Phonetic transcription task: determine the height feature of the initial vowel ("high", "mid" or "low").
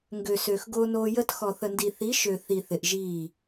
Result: mid